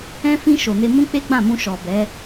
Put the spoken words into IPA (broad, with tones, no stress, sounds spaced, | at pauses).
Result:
ɛ̃˧ f ĩ˧ ʃ o˨ n e˧ m ũ˦ k͡p e˦ ɡ͡b ã˦˨ m ũ˧ ʃ ɔ˨ b ɛ˨˦